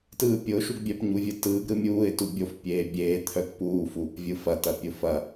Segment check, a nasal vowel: absent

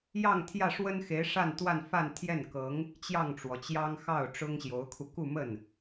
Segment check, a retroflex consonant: present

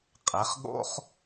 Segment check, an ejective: present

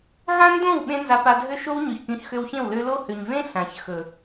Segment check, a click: absent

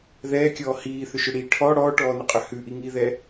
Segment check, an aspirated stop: present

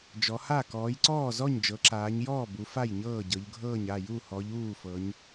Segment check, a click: present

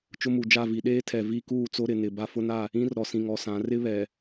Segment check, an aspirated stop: present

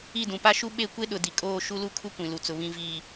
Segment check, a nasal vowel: present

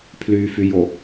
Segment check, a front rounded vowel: present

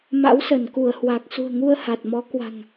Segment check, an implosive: absent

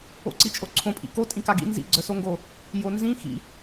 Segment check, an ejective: present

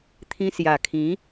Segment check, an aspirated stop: present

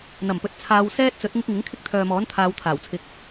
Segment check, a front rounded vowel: present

